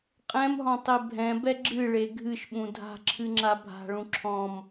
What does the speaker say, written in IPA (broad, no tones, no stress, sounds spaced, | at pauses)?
qʼ ɛ̃ m ɦ ɔ̃ tˤ e bʱ ɛ̃ b ɛ ɡ͡ǁ ɨ ɭ e ɡʱ ɨ ʃ ɓ ũ dʱ a̤ ǁʰ ɨ ŋ͡ǁ a bʱ a̤ ɭ ũ ǁʰ ɔ̃ m